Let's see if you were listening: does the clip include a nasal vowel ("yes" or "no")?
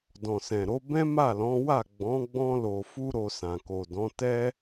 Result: yes